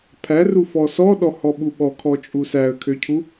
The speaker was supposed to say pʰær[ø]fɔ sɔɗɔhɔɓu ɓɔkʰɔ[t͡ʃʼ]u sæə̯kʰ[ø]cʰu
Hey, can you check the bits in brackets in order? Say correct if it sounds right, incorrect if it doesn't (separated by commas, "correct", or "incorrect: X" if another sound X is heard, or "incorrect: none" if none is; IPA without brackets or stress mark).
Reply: incorrect: u, correct, correct